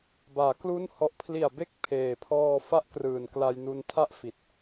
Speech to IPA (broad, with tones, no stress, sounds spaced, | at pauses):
b aː˩˦ k l u˦˥ n h ɔ˨˩ ʔ pʰ l i˨˩ a̯ b e˦˥ k̚ pʰ eː˨˩ pʰ ɔː˧ f a˦˥ ʔ k r ɯː˨˩ n k l a˧ j n u˧ n tʰ a˥˩ ʔ f i˨˩ t̚